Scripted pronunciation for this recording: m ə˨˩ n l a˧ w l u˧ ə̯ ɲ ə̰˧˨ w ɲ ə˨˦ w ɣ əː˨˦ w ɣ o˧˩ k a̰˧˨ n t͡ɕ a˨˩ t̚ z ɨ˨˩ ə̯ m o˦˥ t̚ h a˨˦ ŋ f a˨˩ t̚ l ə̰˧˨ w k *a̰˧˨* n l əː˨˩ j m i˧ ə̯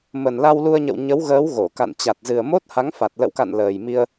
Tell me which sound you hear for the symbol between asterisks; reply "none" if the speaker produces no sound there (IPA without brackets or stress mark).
a̰˧˨